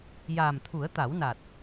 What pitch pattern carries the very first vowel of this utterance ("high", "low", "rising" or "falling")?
low